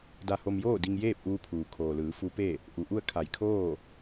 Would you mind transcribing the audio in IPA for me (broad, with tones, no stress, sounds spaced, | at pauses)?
d a˧ h o˧ m j oː˥˨ d i˧ ŋ j eː˥˨ p̚ ʔ uː˧ pʰ uː˩ kʰ oː˩ l ɯː˩˧ f u˧˥ p e˥˨ | ʔ u˩ ʔ u˥˨ ə̯ kʰ a˧˩ j kʰ oː˥˨